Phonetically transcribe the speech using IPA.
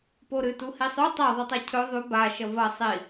p o ɾ ɨ t u h i sˤ u tˤ a ðˤ ɨ tˤ a cʰ ɵ ðˤ ʉ b a ʃ ɐ v ɐ sˤ i

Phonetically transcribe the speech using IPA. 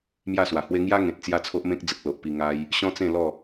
m j a˥˧ s w a˨˩ h w e˦ ŋ j a˦ ŋ ẽ˨ t̚ t͡s j a˥˧ t͡sʰ o˦ ʔ m ẽ˦ k̚ d͡z ə˨ k̚ l o˨ ʔ p i˧ ŋ a˧ j | ɕ ɔ̃˦ t͡s ẽ˥˧ l ɔ˥˧

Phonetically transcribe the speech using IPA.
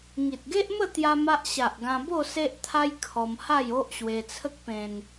ŋ i˨ t̚ ɡ e˦ ʔ m ə˥˧ t̪ j a˦ m a˦ ʔ ɕ a˨ ʔ ɡ ã˧ b o˥˧ s e˦ ʔ t̪ʰ a˦ j kʰ ɔ˧ m h a˥˧ j o˦ ʔ ɕ w e˧ t͡sʰ ə˦ k̚ p ẽ˧ n

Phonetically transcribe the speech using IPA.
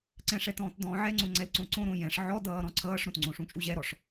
ǀ ɛ̃ ʂ ɛ t ɔ̃ː t d ɔ̃ː ʕ ɛ ŋ͡ǀ õ ŋ͡ǀ ɛ l ǀ õ ǀ õ ɾ õ j ɛ̃ ʂ ʕ ɔ d ʌː ɾ ɔ̃ ǀʰ ʌː ʂ ɾ õ t ŋ͡ǀ õ ʂ ũ t͡ʃʼ u ʑ ɛ ɾ ɔ ʂ

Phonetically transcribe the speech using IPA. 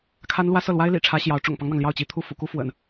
kʰ a˥ n l w ä˥ s ɤ˥˩ l w a˥ ɪ̯ l ḭ˨˩ ʈ͡ʂʰ ä˧˥ ɕ j ɑ˧˥ ʊ̯ ʈ͡ʂ ʊ̰˨˩ ŋ p ɑ˦ ŋ n̪ ɑ˩ ŋ l j ɑ˥˩ ʊ̯ t͡ɕ i˧˥ t̪ʰ u˥˩ f ṵ˨˩ k u˥ f w ə̰˨˩˦ n

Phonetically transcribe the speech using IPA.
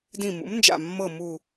d ĩ˧˩ m ṵ˩˥ m n d͡ʒ a̰˧˩ mː ɤ˧˩ m u˧˩

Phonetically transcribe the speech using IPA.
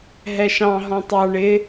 ɦ ɛ ʃ ɑ̃ ɦ ɔ̃ tˤ ɑ ɳ ɪ

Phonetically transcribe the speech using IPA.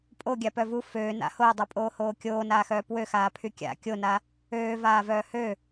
pʼ o ɡʲ a p œ v u f øː n a̰ h o ɪ̯ dˤ u pʼ oː h oː kʲ oː n aː x œː p w ø x aː pʰ y kʲ a̰ kʲ o n a | øː v aː v œː h ø

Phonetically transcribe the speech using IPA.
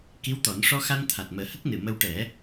k i˧˥ w t̪ ɔ˨˩˦ n ʂ ɔ˧ x a˧ n t̪ʰ a˨˩ t̚ m əː˨˩˦ h ə˦˥ k̚ n ɨ˨˩˨ m ə˧ w ʈ ɛ˨˩˦

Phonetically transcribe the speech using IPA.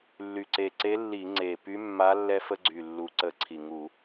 lː y˨˩ ǀ e˨˩ ǀ e˧˥ lː i˧˩˧ ŋ͡ǀ e˨˩ p y˧˥ mː a˧˥ lː ɛ˧ f ə˧ ɡ͡ǀ y˨˩ lː u˨˩ ǀ ə˧˩˧ ǀʰ i˨˩ ŋ u˧˩˧

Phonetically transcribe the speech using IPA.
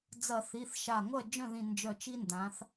d͡z ɐ˧˩˧ θ i˩˧˩ θ ʃ a˧˩ ŋʷ ɐ˥˨ d͡ʒ œ̃˥˨ ð ĩ˧˩ n d͡ʒ œ˧˩ t͡ʃ i˦ n d ã˩˧ θ

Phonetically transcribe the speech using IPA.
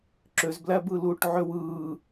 ǁ ø z b l æ b ɯ l uː ʈ ʕ ø w ɯː

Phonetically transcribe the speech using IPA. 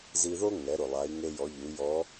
z i˧ ð o˥ ŋ ɛ˩˧ ɾ ʊ˩ lˠ a˩˧ i̯ ŋ e˧ j ɔ˩˧ ʎ u˩˧ j ɔ˧˥

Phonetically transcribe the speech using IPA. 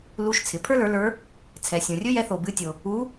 l u˧˥ ʃ t͡sʰ ɪ˩˥ pʰ ə˞˥ l ə˞˩˥ l ə˞˧˥ | t͡sʰ ɛ˨ sʲ õ˨ rʲ ɵ˥ j ɛ˧˥ θ o˨ b ɨ˧˥ tʲ o˨ | u˧˥

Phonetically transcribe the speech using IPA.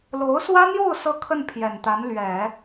l o˧˥ ʊ̯ s w ä˥ n̪ j o˥˧ ʊ̯ s ɤ˥˧ kʰ ə˥˩ n pʰ j ɛ˨˩ n t̪ a˧˥ n l ɥ ɛ˨˩˦

